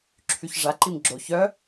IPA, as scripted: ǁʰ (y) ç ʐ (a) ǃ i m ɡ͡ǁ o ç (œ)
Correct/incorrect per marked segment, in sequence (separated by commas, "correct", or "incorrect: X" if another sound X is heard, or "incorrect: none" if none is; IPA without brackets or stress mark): correct, correct, correct